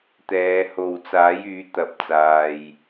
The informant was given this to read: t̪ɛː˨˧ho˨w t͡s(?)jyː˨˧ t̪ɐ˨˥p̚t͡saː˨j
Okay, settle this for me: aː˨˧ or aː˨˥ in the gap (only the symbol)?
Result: aː˨˥